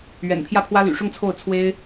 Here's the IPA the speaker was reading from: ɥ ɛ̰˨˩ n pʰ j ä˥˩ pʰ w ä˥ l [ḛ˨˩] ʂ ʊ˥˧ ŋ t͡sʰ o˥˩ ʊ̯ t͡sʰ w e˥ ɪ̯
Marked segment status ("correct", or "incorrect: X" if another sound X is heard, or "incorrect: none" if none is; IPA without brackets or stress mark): incorrect: y̰˨˩